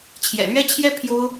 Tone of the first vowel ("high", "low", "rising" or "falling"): low